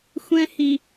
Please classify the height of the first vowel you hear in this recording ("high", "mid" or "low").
mid